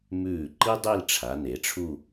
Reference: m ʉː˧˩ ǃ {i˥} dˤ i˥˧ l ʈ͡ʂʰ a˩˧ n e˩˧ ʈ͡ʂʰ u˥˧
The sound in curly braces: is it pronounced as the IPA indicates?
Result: yes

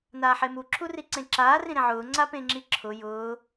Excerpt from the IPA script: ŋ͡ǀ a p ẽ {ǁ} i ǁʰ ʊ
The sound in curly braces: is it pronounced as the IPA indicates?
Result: no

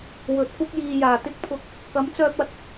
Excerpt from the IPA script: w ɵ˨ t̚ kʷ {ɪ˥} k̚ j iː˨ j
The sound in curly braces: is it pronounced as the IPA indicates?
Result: yes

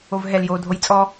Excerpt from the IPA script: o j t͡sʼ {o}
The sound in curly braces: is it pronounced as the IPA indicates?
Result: no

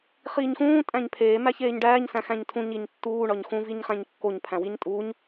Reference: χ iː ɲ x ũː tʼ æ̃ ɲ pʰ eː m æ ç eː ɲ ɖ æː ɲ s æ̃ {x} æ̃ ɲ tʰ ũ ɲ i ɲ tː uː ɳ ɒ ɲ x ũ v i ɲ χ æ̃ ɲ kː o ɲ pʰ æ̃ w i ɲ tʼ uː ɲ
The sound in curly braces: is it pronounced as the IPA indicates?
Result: yes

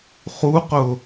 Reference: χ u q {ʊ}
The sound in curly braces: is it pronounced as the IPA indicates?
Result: yes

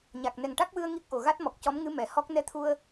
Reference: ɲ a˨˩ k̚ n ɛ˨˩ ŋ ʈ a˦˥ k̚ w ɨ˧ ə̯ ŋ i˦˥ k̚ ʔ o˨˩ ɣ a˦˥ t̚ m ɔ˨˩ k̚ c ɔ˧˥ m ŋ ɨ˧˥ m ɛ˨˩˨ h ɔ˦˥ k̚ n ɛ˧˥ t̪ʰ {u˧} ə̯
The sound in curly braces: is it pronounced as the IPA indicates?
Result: yes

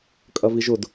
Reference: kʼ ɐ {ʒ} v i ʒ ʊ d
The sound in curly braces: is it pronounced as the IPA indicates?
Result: no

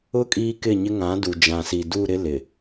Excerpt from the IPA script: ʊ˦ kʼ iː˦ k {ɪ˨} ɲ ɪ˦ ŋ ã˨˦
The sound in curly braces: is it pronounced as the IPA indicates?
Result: no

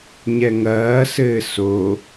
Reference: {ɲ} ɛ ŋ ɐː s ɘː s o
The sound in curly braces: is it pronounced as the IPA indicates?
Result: yes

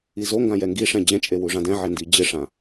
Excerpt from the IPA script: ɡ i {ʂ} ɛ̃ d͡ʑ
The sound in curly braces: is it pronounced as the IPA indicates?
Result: yes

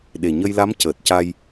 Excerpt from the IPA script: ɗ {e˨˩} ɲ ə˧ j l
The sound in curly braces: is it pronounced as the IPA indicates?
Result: yes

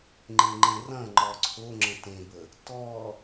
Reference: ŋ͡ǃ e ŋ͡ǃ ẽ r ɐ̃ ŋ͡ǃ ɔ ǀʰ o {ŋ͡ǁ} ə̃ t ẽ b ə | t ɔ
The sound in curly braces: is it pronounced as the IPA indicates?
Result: yes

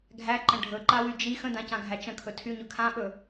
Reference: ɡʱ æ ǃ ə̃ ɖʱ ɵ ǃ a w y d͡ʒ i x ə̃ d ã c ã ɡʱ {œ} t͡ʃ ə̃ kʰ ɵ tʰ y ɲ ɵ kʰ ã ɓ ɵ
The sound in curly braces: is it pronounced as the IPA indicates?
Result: no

